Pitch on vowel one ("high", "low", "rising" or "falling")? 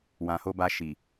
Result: low